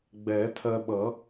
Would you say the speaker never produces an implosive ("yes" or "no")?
no